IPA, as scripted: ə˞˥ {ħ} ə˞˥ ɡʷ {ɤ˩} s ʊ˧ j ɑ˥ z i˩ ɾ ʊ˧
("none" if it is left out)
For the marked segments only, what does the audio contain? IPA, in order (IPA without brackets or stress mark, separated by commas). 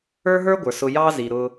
ɦ, ə˞˩